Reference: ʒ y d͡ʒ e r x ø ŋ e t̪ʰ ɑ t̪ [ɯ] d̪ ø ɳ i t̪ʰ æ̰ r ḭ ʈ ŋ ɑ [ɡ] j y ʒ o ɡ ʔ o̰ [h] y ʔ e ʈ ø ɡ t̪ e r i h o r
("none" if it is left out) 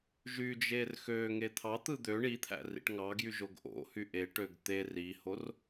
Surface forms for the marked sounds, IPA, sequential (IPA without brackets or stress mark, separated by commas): ɯ, ɡ, h